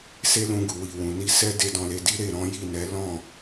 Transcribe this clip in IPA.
s e˦ l ũ˧ ɡ u˨ w i˨ w ũ˨ n i˧ s ɛ˦ d e˦ d ɔ̃˧ l e˧ d i˦ ɾ e˦˨ ɾ ɔ̃˨˦ j i˦˨ n ɛ˨˦ l ɔ̃˦˨

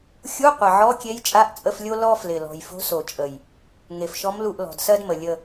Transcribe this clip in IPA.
xʲ u˧˥˧ qʷ ə˨˩ ʕ ɔ˧˥˧ kʲ e˧˥ j t͡ʃʼ a˧˥˧ ʔ t͡sʼ ə˧˥˧ f lʲ o˥ l ɔ˥ f l ɪ˨˩ l ɔ̤˨˩ j f o̤˧˥ s o˨˩ t͡ʃʼ ə˨˩ j | ŋ e˨˩ f ʃ ɔ˧˥ m l u˦˨ ʔ l ɔ̤˨˩ d s ɜ˥ d m ə˨˩ lʲ ə˦˨

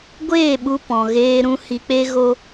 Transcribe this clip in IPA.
ɡʷ eː˦˨ ɓ u˧ p ɔ̃˨ ɣ eː˧ ɾ ũ˧ h i˧ k͡p e˦ ɣ o˦

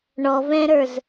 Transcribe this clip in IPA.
ɳ ɔ v ɛ̃ ɾ ə˞ z

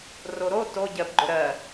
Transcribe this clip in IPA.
r o ɾ o t o ɟ ɜ b ɡ͡ǃ ʊ ɾ ɜ

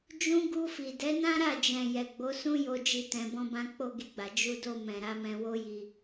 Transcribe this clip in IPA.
d͡ʒ ũ˧ ɡ u˧ f i˨ d ɛ˨˦ n ã˦ ɾ a˦˨ d͡ʒ ɛ̃˨ j ɛ˨ ɡ͡b o˨˦ s ũ˦ j o˧ d͡ʒ i˧ t ɛ̃˨ b ɔ̃˧ b ã˧ k͡p o˦ ɡ i˧ ɡ͡b a˨ d͡ʒ u˧ d o˧ m ɛ̃˨ ɾ a˨˦ m ɛ̃˧ w o˦ j i˧

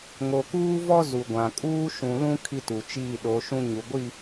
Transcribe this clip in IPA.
ŋ o˨ k uː˦ v ɔ˦ z u˨ ɡʷ ã˨ kʼ uː˦ ʃ ũ˨ l ũ˦ kʰ i˦ t u˨ t͡ʃ iː˦˨ ɗ o˨˦ ʃ ũ˦ ɲ u˨ ɡʷ i˦˨

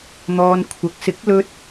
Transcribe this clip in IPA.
n̪ ɔː˨ n kʷʰ ɐ˨ k̚ s ɪ˨˥ k̚ l ɵ˧ t̚

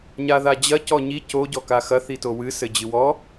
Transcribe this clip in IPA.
ɲ a ð a d͡ʑ ɐ c ɔ ɲ i c o ɟ ɔ k a x ɐ θ i t o w ɨ s ɘ d͡ʑ ɨ w ɔ

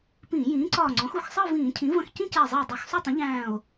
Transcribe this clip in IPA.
p ĩː˧˩˧ j ĩː˩˥ ǀ ɒː˧˩ ŋ͡ǀ ɔ̃˩˥ x u˧˩ x sˤ əː˥˧ v ĩː˧˩˧ cʰ ĩ˩˥ v ə̃˧˩ x c ĩ˥˧ c æ˧˩ zˤ ʌ˧˩ e̯ dˤ u˧˩˧ x sˤ u˥˧ tˤ ə̃˩˥ ʎ æ̃ː˧˩ o̯

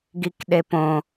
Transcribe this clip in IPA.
ɡ i k ɗ e p õ

